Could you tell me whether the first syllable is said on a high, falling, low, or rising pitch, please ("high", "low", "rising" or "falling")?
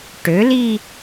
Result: rising